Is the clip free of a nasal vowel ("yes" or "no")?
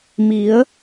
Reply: yes